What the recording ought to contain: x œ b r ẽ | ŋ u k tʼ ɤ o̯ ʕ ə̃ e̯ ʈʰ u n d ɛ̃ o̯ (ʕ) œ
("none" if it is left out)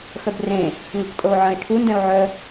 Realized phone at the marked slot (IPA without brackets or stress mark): ʕ